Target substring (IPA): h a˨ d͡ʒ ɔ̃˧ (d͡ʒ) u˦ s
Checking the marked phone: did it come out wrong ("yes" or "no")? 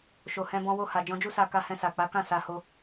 no